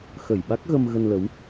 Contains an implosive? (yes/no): yes